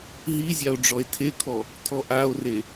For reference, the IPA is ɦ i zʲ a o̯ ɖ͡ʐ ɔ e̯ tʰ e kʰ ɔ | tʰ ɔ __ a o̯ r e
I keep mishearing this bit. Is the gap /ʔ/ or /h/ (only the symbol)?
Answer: ʔ